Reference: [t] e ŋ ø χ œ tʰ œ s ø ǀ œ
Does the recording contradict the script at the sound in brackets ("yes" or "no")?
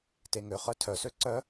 no